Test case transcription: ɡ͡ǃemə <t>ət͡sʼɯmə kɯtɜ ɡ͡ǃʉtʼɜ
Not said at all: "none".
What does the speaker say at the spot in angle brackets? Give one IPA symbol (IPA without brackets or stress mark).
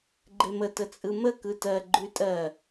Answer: t